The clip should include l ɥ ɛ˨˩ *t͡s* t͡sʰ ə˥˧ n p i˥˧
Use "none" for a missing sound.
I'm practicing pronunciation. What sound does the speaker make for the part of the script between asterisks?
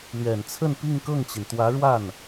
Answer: n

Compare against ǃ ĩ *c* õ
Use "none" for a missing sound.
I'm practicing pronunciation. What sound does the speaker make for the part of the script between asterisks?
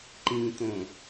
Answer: t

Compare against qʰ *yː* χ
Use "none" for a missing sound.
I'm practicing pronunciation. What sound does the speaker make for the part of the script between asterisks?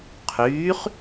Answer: yː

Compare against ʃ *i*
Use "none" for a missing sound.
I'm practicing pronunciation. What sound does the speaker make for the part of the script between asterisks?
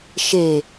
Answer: e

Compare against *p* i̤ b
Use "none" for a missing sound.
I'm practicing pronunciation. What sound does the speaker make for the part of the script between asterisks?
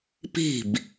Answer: p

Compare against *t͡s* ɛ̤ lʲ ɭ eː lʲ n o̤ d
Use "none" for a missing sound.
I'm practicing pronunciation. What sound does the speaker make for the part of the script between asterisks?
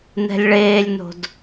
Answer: n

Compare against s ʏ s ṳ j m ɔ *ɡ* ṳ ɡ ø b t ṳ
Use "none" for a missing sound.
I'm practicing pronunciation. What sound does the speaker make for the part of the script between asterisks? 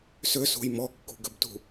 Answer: kː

